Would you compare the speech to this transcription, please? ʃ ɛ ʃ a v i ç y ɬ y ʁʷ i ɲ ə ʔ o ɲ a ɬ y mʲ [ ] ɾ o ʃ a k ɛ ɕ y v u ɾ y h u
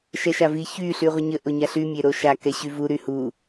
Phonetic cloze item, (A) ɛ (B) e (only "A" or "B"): B